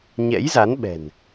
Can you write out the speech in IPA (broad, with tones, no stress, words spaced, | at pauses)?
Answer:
ɲɛ̰˧˥jza˨˦nɓɛ̤˨˩n